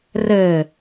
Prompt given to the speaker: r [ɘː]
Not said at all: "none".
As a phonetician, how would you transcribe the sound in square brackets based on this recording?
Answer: ɘː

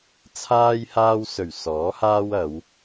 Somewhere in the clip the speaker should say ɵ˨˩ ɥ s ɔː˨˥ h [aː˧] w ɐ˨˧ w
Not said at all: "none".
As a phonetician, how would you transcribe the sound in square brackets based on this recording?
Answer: aː˥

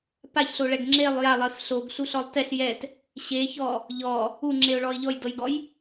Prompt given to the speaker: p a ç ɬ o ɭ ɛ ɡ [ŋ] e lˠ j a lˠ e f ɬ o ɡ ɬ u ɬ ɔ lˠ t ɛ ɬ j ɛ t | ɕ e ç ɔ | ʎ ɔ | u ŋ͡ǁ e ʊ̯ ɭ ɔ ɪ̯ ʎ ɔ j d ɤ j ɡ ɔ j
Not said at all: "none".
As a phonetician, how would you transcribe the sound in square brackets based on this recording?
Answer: ŋ͡ǁ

